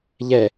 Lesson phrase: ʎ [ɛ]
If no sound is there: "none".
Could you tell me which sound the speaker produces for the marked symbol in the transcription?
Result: ɛ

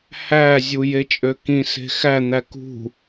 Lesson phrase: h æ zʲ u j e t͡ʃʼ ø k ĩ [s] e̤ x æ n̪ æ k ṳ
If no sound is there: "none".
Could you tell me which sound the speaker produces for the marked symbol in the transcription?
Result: s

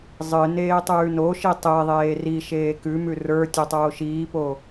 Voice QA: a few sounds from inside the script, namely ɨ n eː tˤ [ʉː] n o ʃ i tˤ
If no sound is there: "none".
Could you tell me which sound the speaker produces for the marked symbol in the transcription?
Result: ʉː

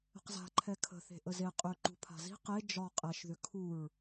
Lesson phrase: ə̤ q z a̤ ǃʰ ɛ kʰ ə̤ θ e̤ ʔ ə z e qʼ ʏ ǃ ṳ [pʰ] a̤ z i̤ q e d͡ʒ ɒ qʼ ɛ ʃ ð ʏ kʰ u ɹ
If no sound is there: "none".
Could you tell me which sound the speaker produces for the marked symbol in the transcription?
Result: pʰ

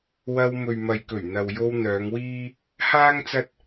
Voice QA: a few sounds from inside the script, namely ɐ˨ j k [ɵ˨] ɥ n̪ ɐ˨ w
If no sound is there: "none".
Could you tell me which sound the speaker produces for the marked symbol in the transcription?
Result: ɵ˨˩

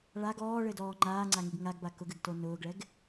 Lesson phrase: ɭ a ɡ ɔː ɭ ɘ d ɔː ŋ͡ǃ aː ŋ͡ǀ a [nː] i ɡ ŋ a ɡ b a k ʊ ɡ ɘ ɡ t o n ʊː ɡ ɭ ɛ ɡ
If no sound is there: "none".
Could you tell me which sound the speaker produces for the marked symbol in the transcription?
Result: ŋ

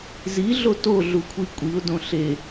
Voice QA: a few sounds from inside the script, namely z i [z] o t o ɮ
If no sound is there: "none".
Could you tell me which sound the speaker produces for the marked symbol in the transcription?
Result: ɮ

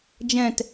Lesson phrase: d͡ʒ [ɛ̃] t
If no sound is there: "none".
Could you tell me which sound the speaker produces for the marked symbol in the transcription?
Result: ɛ̃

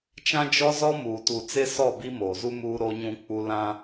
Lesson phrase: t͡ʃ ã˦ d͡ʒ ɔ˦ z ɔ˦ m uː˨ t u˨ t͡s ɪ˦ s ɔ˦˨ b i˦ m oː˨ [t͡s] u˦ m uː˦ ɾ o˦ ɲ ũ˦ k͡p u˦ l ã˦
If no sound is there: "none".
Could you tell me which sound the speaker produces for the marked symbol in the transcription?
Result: z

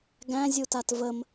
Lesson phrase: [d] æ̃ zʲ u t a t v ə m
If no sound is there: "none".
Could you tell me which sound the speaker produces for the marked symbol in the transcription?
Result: ɡ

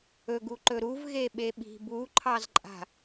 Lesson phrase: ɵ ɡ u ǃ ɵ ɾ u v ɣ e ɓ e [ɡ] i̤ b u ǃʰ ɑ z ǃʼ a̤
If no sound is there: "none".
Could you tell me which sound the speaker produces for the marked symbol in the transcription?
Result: ɓ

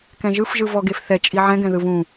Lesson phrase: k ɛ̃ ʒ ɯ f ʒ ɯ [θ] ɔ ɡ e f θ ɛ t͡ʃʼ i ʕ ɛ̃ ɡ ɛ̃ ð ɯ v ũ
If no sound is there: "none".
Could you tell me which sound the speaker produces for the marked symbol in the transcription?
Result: v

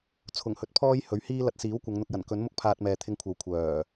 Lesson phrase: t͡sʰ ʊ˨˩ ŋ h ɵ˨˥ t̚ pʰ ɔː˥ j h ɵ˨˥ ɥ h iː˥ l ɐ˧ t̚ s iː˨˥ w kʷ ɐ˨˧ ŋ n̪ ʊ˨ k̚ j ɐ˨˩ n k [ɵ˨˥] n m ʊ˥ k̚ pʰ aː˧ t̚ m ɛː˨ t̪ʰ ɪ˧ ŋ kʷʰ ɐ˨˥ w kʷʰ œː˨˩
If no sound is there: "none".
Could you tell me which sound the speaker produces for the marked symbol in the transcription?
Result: ɵ˨˥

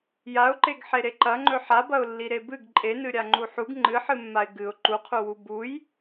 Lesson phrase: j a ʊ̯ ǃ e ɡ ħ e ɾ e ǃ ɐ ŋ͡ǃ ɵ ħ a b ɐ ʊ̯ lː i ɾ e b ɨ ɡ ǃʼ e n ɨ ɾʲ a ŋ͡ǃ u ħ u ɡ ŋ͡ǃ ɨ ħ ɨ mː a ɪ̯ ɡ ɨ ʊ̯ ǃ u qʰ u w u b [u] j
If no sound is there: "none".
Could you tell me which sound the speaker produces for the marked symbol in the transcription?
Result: u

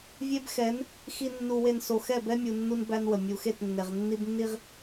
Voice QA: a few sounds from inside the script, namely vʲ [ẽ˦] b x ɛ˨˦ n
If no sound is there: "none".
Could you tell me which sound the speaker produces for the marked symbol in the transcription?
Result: e˦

